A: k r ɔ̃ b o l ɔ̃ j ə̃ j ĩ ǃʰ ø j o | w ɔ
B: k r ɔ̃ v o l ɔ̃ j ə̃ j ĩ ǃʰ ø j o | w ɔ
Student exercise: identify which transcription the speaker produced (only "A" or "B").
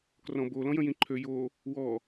A